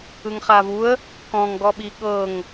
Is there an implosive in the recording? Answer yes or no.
yes